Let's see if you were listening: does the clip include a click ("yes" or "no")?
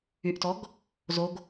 no